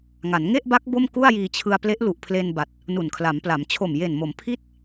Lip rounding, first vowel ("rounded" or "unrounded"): unrounded